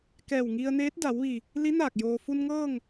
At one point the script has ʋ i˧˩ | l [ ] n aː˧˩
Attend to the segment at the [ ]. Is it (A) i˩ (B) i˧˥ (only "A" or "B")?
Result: B